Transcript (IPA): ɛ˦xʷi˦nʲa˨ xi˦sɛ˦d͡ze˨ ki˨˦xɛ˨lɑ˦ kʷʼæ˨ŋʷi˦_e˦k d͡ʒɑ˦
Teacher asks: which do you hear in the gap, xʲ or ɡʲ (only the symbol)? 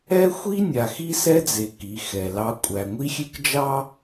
xʲ